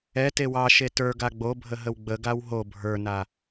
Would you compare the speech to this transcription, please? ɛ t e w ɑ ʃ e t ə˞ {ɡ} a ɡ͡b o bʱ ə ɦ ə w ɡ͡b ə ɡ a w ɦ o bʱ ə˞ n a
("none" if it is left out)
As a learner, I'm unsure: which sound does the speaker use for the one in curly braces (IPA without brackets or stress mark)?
ɡ